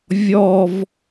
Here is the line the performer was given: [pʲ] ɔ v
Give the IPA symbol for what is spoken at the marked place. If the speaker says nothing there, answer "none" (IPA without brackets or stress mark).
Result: vʲ